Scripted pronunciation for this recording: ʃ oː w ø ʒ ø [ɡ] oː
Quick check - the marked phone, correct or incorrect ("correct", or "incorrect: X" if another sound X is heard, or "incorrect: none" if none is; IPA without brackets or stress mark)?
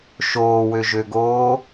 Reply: correct